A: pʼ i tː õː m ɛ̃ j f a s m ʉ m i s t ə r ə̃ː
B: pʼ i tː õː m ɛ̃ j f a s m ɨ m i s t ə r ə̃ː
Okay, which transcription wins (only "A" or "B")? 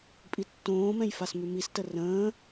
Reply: A